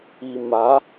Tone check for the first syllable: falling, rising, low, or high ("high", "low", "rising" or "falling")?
low